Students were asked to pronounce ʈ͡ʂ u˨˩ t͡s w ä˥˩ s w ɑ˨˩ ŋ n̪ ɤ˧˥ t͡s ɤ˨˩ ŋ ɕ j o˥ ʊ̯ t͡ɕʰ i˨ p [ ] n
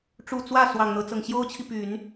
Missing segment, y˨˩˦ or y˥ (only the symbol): y˨˩˦